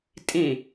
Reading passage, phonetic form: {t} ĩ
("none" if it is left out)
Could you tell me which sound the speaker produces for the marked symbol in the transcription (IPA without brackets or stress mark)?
tʼ